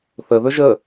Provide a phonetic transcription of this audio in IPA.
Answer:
θəðɵ ʒə

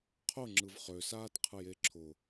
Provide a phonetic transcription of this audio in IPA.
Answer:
qʰʊŋ͡ǁɯv χøsaːtqʰɯje ǁʰʊ

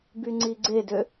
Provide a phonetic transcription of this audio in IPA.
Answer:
byŋ͡ǀiɡ͡ǀedø

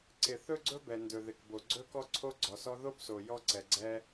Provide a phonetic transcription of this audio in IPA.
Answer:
ǀɪ˩ θɵ˥ɡ͡ǀɵ˥bɛ˩ ndɵ˩ðɪ˩k bo˩ɡ͡ǀɵ˥kɔ˥ǀʰo˥ ɡ͡ǀɔ˩sɔ˥ ðo˥bso˩ jɔ˥ǀɛ˩ɡ͡ǀɛ˥

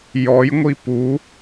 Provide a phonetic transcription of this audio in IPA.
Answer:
jɔjŋʷi pu

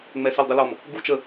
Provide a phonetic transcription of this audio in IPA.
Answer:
ŋ͡mɛsɪldˤɪlɔm | ɡu t͡ʃə

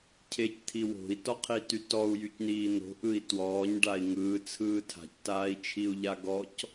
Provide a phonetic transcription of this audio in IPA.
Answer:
cʰect̪ʰi wo̤i̯tɔqʰity tɔu̯jycniː n̪o̤ʔɯi̯ twɔːɲɖai̯ ŋɯːt͡sʰɯː tʰa̤ctaːi̯t͡ʃʰiu̯ʎa ɡɔc

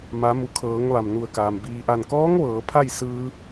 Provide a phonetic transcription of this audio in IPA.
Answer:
ma˩˧mu˩˧kʰɤː˩˧ŋ ʋa˩mnu˧˩ə̯kaː˩m biː˩ʔa˧˩nkɔː˧˥ŋ ʋɤː˩˧pʰa˥˨jsɯː˧

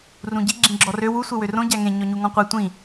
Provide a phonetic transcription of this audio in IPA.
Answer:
rũɟi ɡ͡ǁĩɡ͡ǁɔrø wu sʷewørõ ɟæŋẽ ɲɔɲuŋɔ̃qʷe tʷĩ

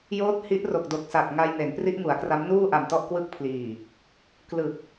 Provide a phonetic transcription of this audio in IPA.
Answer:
joː˦˥t̚hi˦˥ʔro˨˩k̚ do˨˩k̚sa˨˩k̚ŋa˧j ne˩˦npri˦˥ʔŋu˩˦a̯kra˦˥m nuː˥˩ʔa˨˩mtɔ˥˩ʔ kwɯ˦˥k̚pʰliː˨˩ | klɯ˨˩k̚

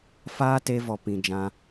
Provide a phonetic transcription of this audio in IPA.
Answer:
faː˦te˧vɔ˨ pĩ˨d͡ʒã˧

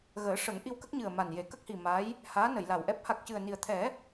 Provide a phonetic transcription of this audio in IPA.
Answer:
ɣəː˨˩˦ʂə˨˩˦ŋ ʔi˧wkə˦˥k̚ɲɨ˨˩ə̯ ma˨˩nje˨˩˦ kə˦˥k̚hi˨˩ ma˧˥j | haː˧˥ nə˨˩˨jla˨˩wʔɛ˦˥p̚ ha˨˩k̚cɨ˨˩ə̯ni˨˩ə̯t̪ʰɛ˨˩˦

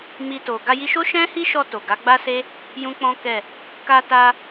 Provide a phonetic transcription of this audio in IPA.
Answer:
mi˧to˨ ɡa˧ji˧ ʃo˦ʃɛ̃˦hi˦ʃɔ˧ to˨ɡa˨˦ ɡ͡ba˦se˦ | jũ˦k͡pɔ̃˦kɛ˦˨ | ka˧ta˧

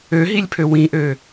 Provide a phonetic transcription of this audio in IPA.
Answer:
øɦilʲpʰø wĩʔø

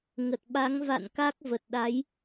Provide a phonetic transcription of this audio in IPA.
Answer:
ŋə˨˩t̚ɓa˨˦ŋ va̰˧˨n ka˦˥k̚və˨˩t̚ɗa˨˦j

